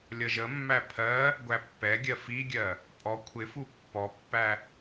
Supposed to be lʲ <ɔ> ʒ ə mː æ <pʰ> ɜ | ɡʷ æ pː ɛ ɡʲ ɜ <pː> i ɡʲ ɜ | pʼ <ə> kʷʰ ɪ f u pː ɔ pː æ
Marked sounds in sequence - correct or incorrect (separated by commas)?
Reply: incorrect, correct, incorrect, incorrect